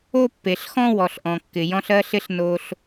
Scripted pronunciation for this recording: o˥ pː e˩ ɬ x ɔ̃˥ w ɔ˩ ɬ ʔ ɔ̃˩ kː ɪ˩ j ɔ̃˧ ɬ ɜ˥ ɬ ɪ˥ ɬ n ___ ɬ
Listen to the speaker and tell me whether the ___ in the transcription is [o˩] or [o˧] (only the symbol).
o˧